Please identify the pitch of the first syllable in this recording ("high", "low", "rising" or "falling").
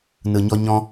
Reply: low